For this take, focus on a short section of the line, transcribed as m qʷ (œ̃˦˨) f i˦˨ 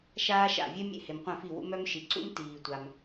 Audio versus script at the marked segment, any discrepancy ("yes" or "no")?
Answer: no